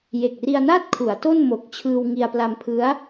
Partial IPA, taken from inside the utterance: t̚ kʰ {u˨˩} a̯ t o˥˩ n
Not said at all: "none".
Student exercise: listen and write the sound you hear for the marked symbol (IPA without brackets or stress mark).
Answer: u˩˦